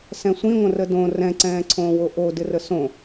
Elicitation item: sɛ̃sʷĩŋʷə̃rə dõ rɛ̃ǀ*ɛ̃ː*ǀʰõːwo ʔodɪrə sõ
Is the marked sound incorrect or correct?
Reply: correct